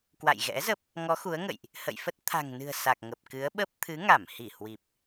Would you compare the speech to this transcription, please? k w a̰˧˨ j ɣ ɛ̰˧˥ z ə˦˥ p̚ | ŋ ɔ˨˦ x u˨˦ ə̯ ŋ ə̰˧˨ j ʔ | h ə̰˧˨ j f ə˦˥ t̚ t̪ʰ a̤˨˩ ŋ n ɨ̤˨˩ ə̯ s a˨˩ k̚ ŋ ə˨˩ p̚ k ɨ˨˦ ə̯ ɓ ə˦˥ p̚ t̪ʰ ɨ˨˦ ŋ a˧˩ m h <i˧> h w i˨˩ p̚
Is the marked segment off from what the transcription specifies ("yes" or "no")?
yes